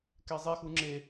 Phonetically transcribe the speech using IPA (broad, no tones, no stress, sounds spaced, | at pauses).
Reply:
k ɛ zˤ ɛ x u ŋ͡ǁ e